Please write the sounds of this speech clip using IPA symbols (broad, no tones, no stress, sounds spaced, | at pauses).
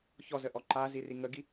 ç ɔ z ə ʔ ɔ ǃ a z i r i ŋ ə ɡ i